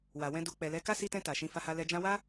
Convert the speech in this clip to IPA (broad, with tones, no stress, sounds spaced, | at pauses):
w a˨ w ɛ̃˧ d u˨ k͡p ɛ˨ l ɛ˨˦ k a˦ s i˧ t ɛ̃˧ t a˨ ʃ ĩ˧ f a˧ h a˧ l ɛ˧ d͡ʒ ã˧ w a˦